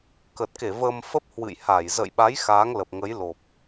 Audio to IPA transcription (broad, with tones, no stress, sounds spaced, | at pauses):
k ə˨˩ t̚ k e˧˩ v əː˧ m f ə˦˥ p̚ h w ɨ̰˧˨ j h a˧˩ j z ə̰˧˨ j ɓ a˨˦ j x aː˨˦ ŋ l ə˨˩ p̚ ŋ ə˨˦ j l o˨˩ p̚